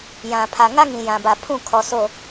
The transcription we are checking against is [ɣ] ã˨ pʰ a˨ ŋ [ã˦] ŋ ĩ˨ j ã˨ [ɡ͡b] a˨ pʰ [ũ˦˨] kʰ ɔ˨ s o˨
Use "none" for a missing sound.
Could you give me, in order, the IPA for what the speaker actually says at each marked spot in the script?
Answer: j, a˦, b, ũ˦˨

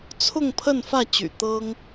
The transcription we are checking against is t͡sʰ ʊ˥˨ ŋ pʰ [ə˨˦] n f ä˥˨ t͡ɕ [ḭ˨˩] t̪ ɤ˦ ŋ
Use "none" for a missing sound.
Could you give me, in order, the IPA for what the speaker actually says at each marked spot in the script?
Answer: ə˥˨, y̰˨˩

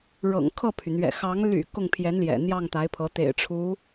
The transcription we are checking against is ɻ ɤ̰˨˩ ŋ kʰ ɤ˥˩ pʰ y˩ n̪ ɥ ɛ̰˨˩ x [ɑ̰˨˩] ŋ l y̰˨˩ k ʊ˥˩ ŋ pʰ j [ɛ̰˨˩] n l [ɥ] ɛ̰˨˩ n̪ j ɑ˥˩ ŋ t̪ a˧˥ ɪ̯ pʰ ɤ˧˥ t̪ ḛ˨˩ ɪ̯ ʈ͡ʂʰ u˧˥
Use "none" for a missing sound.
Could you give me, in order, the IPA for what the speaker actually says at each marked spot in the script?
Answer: ɑ˧˥, ɛ˧˥, j

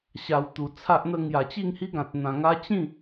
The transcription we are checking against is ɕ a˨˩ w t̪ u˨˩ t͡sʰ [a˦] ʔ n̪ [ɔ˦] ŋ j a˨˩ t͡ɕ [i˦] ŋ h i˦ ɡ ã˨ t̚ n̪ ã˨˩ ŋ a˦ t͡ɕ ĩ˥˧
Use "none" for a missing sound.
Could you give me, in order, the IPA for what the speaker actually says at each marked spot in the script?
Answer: a˦, ə˦, i˥˧

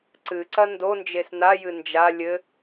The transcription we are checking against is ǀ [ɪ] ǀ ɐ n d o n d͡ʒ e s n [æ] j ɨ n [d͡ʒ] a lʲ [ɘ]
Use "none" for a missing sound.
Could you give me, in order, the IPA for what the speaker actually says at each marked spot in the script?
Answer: ɨ, a, d͡ʒ, ɘ

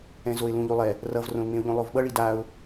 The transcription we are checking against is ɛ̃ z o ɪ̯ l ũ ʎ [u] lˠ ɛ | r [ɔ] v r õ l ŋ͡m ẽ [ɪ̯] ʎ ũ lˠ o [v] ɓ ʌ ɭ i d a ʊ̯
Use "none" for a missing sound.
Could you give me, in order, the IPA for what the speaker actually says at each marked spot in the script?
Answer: u, ʌ, ʊ̯, v

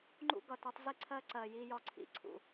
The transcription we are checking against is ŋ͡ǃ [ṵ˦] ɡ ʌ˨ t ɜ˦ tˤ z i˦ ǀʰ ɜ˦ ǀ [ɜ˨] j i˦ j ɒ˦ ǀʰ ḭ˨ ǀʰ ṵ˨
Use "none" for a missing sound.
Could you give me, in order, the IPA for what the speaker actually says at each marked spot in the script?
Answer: ṵ˦, ɜ˨

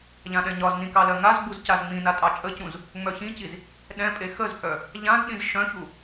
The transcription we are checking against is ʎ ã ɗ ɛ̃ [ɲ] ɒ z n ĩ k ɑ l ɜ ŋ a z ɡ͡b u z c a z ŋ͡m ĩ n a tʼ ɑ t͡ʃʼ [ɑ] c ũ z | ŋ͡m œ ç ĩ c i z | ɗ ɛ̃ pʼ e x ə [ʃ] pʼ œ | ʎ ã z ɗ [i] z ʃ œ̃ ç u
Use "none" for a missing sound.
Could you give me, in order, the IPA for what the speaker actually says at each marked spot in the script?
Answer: ɲ, ə, z, ĩ

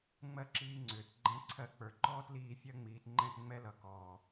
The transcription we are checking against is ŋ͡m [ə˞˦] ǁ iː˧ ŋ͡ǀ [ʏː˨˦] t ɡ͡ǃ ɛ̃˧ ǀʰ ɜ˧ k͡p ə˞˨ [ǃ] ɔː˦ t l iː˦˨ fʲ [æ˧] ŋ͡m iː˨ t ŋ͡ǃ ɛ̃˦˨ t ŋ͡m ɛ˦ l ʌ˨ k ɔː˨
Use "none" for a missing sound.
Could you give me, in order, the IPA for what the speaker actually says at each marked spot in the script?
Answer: ɜ˦, ʏː˨, ǃ, ɜ˧

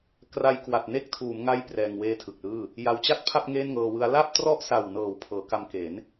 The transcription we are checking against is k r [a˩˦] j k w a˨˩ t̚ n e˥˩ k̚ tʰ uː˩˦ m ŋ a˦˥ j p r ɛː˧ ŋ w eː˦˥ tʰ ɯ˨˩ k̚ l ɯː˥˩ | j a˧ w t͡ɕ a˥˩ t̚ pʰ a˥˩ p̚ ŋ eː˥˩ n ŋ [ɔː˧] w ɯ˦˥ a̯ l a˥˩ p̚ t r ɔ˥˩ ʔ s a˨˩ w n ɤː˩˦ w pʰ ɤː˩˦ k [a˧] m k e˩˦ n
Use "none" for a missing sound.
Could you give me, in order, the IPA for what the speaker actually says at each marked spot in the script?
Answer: a˧, ɤː˧, a˧

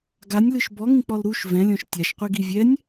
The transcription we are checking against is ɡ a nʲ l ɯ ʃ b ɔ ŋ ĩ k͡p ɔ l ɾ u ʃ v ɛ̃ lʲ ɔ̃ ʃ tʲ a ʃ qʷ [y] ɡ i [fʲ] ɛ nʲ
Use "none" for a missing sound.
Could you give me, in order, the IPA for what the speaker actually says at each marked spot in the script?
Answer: i, vʲ

